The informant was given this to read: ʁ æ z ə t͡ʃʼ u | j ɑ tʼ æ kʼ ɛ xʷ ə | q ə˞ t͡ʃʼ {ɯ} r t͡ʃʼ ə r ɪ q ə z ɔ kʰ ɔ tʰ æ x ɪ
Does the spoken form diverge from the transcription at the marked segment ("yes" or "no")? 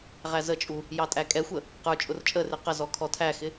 yes